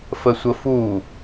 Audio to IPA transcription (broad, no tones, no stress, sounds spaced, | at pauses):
f ə sʷ ə f u